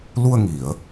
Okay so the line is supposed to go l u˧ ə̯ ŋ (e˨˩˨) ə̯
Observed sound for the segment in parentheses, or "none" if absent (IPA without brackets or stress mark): i˨˩˨